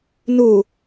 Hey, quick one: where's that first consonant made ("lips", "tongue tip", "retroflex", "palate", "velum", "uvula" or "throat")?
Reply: tongue tip